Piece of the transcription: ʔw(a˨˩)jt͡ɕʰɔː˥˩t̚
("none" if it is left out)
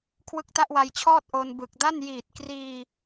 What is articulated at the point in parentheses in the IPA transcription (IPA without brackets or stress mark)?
a˧